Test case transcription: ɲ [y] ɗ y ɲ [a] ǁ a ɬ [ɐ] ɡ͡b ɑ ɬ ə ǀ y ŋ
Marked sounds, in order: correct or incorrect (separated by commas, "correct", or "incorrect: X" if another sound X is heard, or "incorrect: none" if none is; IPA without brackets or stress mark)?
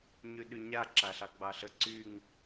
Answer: correct, correct, incorrect: ɑ